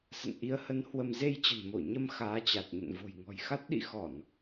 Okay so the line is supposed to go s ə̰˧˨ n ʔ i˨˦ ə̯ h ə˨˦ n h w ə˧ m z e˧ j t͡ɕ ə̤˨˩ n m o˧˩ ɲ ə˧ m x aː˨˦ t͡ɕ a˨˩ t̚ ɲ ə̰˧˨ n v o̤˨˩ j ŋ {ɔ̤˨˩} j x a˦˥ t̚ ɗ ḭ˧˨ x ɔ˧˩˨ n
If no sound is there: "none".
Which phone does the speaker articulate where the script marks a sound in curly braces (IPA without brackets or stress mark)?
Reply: ɔ̤˨˩